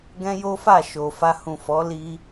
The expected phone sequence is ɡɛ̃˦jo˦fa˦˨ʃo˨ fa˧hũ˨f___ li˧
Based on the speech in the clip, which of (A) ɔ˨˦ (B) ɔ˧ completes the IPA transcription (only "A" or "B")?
A